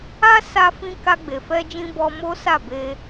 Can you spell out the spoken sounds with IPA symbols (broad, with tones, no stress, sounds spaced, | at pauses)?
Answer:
a˦ s a˧ f ĩ˧ k a˧ ɡ͡b e˨ f ɛ˧ d͡ʒ ĩ˧ b ɔ˧ m o˦ s a˦˨ b e˧